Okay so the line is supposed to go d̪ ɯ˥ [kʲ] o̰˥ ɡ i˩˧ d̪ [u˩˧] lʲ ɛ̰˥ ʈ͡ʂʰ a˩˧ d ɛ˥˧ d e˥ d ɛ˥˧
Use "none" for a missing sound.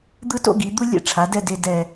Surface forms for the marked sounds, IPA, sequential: t, u˥

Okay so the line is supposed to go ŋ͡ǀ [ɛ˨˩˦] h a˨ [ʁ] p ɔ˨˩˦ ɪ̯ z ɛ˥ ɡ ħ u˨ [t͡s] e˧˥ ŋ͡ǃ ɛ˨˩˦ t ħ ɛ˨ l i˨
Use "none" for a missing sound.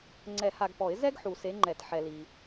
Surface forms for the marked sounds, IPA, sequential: ɛ˨˩˦, ɡ, s

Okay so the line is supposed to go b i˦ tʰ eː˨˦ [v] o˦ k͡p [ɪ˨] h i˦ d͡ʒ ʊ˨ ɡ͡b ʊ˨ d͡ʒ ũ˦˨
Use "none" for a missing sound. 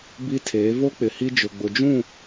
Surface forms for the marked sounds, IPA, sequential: v, ɪ˨

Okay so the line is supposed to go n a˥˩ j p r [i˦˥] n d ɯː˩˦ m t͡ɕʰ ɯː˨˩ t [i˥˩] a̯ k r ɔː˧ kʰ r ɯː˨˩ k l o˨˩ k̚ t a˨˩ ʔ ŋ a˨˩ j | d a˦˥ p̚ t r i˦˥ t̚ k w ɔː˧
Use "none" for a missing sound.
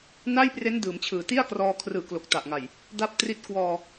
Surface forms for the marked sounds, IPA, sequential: e˦˥, i˥˩

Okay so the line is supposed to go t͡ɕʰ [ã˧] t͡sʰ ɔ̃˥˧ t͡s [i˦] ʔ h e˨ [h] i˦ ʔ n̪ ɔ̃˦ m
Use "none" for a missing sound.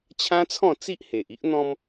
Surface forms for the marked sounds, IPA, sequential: ã˦, i˦, ʔ

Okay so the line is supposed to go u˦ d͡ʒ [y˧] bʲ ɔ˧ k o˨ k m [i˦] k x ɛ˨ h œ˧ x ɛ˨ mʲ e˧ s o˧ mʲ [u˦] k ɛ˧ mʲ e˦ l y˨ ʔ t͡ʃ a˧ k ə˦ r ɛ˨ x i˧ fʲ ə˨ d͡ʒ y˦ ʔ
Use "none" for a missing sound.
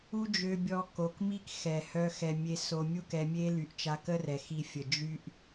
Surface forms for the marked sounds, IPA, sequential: ø˧, i˦, u˦

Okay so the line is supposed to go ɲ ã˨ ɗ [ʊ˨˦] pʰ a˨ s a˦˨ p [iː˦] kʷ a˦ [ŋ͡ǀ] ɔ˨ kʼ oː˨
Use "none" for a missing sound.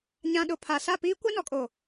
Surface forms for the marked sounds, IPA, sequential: ʊ˨, iː˦, n

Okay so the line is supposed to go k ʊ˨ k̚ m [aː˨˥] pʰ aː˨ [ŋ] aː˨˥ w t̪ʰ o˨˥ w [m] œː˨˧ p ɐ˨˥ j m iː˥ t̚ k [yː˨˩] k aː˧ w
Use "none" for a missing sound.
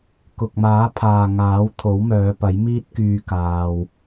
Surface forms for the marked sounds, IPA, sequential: aː˨˥, ŋ, m, yː˧

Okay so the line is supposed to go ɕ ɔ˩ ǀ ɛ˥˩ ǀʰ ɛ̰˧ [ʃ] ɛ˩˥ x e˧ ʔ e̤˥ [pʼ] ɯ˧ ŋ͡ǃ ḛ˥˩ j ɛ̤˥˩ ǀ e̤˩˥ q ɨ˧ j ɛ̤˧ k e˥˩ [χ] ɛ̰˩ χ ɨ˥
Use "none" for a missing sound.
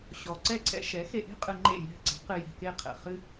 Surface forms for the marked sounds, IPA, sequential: ʃ, qʼ, qʰ

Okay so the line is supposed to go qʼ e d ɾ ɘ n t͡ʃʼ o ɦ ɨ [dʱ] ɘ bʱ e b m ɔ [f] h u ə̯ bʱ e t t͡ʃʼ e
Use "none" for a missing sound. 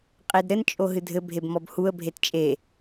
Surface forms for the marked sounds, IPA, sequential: dʱ, b

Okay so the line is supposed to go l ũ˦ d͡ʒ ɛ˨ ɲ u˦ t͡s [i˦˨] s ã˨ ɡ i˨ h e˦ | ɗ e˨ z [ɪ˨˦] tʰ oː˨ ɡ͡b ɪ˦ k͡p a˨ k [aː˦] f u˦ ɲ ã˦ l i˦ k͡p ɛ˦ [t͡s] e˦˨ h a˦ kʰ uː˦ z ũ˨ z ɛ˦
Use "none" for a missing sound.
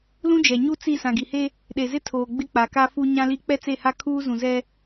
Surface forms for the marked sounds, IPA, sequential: i˦˨, ɪ˦, a˦, t͡s

